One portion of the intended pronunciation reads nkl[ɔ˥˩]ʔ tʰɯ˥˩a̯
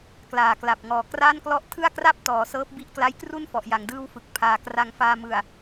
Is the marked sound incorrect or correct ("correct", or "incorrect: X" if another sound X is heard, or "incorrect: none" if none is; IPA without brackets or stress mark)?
correct